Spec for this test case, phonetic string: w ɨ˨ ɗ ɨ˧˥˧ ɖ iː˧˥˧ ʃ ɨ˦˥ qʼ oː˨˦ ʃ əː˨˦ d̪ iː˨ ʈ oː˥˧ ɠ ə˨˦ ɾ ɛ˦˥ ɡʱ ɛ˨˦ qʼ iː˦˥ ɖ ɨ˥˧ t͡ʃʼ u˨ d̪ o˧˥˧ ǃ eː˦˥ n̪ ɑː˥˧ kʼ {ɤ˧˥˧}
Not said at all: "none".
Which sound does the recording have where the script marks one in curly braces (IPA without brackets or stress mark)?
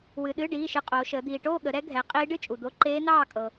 ɤ˨